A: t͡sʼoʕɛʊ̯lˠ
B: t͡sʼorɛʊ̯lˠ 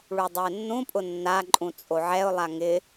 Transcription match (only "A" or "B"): A